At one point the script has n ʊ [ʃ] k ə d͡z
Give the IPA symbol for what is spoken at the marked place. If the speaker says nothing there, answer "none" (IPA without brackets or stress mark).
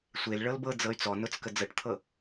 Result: t͡s